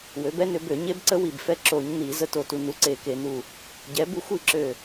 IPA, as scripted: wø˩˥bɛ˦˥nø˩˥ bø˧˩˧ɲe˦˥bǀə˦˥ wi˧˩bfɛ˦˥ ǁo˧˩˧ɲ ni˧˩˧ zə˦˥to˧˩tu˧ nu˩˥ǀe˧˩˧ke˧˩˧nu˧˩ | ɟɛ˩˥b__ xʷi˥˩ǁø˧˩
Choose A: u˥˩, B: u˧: B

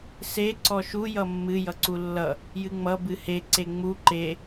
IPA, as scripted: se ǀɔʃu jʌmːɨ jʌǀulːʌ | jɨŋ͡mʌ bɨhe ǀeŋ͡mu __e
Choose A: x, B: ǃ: B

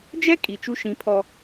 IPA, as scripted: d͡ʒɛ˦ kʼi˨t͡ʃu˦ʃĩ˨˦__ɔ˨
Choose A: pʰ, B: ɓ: A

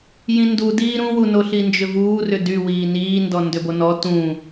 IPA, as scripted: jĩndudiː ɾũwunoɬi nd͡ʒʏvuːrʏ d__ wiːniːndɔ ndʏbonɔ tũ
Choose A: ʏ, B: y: B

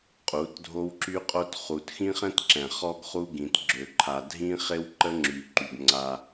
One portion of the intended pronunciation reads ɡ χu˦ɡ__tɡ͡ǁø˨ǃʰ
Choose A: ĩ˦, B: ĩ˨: B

